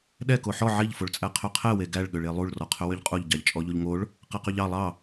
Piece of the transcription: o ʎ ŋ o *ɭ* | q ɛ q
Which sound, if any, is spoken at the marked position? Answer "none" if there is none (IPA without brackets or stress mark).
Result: ɭ